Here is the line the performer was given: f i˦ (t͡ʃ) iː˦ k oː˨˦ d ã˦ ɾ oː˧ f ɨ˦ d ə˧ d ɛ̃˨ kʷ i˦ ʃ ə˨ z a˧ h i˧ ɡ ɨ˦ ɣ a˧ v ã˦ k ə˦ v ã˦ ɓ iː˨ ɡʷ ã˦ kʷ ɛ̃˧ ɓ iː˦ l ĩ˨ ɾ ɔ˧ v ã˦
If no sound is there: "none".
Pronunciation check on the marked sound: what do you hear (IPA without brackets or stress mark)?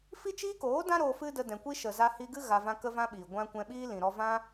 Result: t͡ʃ